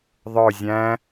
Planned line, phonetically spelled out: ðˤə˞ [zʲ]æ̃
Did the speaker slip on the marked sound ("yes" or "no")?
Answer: no